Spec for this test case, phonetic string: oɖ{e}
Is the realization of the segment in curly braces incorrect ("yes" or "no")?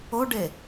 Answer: no